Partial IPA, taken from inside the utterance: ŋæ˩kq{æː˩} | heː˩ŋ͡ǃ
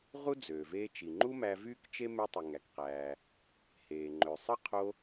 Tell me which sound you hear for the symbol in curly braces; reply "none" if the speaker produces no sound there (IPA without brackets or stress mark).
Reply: æː˩